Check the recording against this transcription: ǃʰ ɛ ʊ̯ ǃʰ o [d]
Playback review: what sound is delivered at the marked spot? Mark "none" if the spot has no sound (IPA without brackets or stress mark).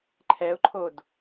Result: d